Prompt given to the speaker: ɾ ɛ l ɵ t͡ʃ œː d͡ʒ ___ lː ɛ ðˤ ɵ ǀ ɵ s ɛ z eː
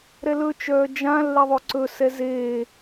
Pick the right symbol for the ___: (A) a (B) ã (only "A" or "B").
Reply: B